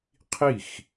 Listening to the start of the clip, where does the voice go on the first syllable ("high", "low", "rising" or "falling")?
falling